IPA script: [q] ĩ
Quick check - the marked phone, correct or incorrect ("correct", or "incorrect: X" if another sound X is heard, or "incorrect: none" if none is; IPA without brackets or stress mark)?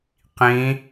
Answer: correct